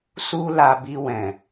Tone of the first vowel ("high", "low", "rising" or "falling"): high